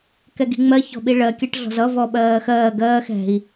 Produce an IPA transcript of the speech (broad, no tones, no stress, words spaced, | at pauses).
kɛɡi̤ŋ͡mɜ çɔ̤ɓiɭɜ kʲɐʈɮɔ̤zʌ vɔɓɜːxɜː ɡɜːx ɛ̤i̯